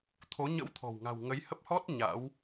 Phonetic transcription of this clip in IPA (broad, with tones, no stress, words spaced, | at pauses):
t̪ʰo˨˦ ɲə̰˧˥wt̪ʰɔ̤˨˩wŋa̤˨˩w ŋə˨˦jhə˦˥p̚hɔ˦˥t̚ ɲa̰˧˥w